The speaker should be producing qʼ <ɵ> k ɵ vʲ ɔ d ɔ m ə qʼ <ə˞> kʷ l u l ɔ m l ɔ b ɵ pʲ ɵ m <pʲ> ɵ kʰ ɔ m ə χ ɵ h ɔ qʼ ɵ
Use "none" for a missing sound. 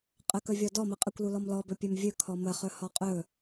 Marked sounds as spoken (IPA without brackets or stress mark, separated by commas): ə, ə, vʲ